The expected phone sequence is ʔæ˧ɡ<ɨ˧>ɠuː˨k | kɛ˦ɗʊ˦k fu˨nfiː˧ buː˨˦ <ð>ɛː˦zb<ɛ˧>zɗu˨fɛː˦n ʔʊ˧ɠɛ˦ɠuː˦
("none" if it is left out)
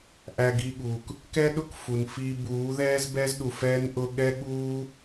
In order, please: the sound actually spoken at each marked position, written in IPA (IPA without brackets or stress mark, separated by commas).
i˧, ð, ɛ˦